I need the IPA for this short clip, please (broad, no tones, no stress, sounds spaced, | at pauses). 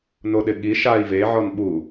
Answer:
n o ɗ ɪ ɠ i ʃ a i̯ v e ʕ ɔ n ɓ u